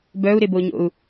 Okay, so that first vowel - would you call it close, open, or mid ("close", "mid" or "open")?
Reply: mid